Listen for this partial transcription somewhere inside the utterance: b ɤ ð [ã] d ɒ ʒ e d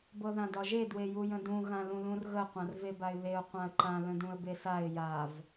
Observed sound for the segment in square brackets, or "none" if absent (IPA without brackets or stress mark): ã